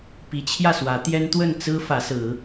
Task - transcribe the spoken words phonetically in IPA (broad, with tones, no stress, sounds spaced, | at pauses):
p i˨˦ t͡ɕʰ j ä˥˨ s w ä˨˦ t̪ j ɛ˦ n t̪ w ə˥˨ n t͡s ɹ̩˦ f ä˨˦ s ɹ̩˨˦